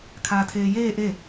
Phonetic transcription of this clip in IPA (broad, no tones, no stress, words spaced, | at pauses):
kʰaːtʰeːjeː ʔe